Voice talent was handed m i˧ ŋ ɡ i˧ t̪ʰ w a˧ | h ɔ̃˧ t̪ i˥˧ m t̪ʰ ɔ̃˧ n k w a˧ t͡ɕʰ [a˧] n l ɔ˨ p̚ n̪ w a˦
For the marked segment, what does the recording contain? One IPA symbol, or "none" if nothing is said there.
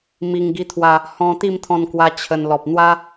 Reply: ə˧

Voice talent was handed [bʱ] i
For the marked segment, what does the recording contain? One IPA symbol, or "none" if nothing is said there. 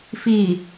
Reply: f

